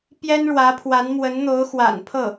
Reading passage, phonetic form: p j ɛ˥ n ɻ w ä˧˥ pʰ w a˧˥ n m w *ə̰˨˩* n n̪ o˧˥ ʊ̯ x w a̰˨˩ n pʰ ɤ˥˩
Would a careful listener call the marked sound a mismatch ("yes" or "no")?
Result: yes